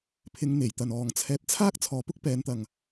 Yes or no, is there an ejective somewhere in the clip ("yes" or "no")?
no